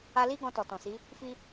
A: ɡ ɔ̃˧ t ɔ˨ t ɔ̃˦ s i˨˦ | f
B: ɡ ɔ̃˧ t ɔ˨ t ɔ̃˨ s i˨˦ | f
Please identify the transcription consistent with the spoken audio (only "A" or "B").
B